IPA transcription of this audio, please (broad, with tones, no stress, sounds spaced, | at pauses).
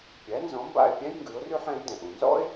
pʲ æ˩˥ n z ɔ̃˩˥ m b a̰˥˩ ɪ̯ pʲ æ̃˥ j ŋ ɡ ʉ˩˥ ʊ̯ r ʉ˥ ħ ɛ̃˩˥ l d ɛ̃˩ ʔ ũ˩ n z ɔ̰˥ ɪ̯